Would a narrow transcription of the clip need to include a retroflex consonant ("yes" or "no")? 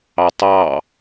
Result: no